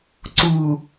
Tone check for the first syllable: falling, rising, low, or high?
low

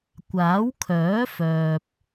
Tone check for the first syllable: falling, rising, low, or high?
rising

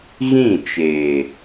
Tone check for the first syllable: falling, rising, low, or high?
falling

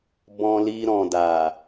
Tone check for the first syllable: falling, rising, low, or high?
low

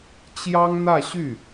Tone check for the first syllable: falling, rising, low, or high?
high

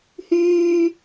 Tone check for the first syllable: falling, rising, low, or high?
high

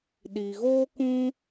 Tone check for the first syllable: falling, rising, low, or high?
low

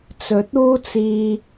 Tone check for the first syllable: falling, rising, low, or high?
rising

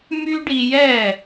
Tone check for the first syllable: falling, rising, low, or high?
high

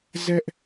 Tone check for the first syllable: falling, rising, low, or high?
high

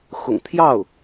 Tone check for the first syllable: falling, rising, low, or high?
low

